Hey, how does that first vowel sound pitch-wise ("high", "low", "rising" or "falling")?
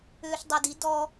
high